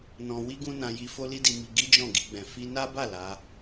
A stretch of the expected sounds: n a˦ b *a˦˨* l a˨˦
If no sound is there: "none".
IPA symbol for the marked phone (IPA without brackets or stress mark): a˦˨